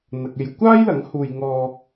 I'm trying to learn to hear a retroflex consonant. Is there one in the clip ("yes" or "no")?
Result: no